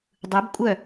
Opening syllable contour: rising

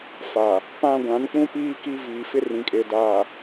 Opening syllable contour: low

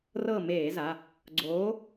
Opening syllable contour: falling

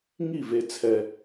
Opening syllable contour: falling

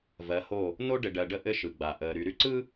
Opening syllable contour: rising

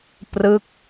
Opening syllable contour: falling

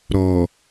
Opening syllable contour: low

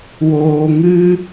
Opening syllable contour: low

